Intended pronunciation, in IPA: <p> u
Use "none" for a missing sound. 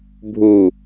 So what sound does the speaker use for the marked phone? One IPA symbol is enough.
bʱ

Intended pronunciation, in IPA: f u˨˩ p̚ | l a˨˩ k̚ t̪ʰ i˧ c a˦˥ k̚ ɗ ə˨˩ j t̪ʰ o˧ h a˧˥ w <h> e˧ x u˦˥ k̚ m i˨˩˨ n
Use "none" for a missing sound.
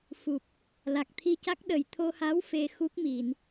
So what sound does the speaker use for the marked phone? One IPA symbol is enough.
f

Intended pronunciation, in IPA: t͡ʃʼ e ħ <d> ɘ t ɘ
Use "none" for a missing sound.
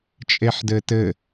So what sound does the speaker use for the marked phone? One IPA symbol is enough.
d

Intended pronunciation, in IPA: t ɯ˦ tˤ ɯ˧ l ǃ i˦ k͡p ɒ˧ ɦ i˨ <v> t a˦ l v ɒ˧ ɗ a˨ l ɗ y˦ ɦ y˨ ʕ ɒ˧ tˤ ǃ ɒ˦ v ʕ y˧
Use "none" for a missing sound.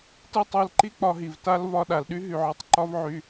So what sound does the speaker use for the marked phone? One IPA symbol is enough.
v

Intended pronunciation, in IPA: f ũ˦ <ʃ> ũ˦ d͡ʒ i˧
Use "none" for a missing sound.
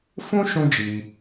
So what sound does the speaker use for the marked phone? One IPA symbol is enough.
ʃ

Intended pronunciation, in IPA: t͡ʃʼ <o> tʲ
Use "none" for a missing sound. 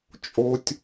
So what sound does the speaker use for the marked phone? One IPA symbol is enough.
o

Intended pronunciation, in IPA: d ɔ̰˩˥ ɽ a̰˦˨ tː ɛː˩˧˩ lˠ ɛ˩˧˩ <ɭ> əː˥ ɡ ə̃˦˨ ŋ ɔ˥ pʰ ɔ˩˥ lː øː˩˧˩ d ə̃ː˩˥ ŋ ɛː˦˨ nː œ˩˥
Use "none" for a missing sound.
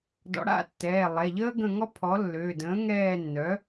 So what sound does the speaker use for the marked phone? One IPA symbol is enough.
ʎ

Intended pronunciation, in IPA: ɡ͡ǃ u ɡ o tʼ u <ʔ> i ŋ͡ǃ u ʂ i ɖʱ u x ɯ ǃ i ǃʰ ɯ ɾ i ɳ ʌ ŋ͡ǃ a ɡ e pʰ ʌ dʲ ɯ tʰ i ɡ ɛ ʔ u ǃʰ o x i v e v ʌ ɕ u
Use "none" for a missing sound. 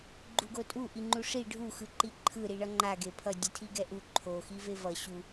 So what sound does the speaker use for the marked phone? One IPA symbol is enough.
ʔ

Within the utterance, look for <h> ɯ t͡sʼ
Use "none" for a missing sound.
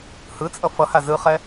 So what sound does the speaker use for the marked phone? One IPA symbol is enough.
h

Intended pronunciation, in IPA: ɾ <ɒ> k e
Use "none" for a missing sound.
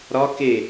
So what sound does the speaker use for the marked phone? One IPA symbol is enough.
ɒ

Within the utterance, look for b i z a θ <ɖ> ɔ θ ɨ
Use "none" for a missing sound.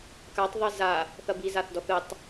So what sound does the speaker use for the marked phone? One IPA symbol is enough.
d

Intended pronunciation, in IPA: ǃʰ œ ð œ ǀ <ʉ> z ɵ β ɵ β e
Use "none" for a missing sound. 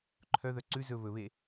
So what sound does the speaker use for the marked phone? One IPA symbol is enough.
ʉ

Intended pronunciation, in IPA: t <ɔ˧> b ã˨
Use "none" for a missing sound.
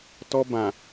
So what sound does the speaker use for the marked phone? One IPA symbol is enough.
ɔ˧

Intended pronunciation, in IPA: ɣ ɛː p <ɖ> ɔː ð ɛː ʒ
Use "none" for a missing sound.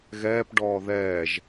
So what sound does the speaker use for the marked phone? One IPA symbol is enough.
ɖ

